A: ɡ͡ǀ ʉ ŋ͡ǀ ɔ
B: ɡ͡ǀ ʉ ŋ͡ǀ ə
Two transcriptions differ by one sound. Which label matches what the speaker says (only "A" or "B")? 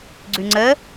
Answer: B